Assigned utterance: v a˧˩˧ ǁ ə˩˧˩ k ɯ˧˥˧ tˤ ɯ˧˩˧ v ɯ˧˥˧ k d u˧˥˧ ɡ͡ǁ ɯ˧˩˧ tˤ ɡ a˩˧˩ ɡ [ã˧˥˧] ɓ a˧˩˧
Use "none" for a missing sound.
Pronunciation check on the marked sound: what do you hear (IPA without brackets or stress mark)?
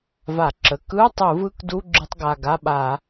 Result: a˧˥˧